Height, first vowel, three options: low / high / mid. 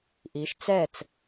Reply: high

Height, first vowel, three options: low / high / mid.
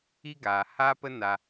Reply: high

